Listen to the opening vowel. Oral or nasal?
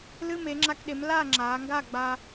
oral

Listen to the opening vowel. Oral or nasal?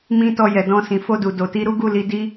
nasal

